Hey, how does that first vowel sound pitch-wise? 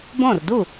falling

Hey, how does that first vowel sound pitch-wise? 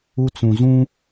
high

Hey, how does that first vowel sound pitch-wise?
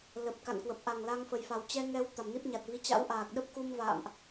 low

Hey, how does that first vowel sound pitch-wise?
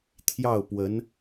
falling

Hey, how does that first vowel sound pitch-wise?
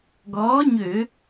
rising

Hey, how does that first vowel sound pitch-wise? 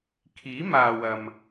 rising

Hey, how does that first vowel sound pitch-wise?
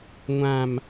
low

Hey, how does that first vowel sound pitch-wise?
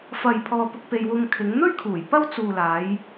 low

